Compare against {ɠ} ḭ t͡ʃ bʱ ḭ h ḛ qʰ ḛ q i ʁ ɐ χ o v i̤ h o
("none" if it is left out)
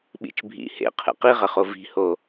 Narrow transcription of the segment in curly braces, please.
ɓ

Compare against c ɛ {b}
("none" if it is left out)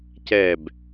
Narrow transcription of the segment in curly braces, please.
b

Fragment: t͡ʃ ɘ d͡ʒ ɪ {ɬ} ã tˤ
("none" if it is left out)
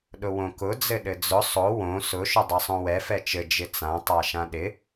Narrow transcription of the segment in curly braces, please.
t͡s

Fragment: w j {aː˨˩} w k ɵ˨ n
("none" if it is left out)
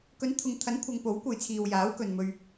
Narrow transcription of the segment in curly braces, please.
aː˨˥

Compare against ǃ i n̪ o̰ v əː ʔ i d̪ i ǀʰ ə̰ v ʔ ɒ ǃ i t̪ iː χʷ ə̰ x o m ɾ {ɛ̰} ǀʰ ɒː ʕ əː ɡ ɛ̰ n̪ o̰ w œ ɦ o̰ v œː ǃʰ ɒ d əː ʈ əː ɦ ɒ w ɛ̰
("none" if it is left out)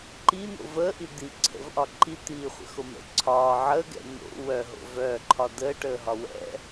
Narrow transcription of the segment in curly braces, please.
ə̰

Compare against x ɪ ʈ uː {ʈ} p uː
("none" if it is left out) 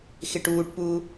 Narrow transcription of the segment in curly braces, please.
ʈ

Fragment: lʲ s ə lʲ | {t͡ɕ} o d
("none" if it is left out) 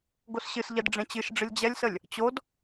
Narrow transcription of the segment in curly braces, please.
t͡ɕ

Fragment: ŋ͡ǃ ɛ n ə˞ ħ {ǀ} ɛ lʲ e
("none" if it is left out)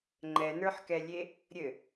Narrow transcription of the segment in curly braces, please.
k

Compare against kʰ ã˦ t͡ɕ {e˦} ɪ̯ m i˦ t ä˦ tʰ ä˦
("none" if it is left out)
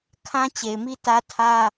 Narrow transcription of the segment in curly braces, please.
e˨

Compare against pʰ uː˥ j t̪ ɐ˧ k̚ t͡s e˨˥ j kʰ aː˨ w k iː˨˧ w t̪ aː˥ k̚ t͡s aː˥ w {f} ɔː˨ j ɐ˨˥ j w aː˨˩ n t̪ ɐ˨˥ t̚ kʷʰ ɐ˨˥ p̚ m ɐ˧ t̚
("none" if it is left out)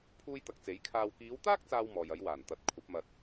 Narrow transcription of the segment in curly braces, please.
m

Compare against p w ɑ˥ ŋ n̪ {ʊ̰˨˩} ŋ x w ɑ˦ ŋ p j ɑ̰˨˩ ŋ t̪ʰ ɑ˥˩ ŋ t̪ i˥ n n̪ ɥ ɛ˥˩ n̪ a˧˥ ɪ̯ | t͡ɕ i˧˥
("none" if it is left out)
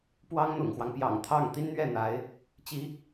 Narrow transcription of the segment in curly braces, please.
ʊ̰˨˩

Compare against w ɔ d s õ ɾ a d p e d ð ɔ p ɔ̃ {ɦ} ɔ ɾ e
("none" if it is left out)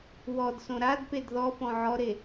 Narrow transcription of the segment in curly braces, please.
ʕ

